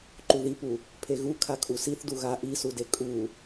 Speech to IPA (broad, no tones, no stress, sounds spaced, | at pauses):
ǃ u ð i p u | pʰ e ɣ u kʰ a kʼ u s i θ d u ɣ a ʔ i s u d e kʼ u